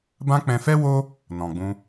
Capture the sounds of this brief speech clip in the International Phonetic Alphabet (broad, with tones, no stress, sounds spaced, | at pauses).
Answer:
b ã˦ k͡p ɛ̃˧ f ɛ˦ w o˦ | n ɔ̃˨ ɡ͡b ũ˧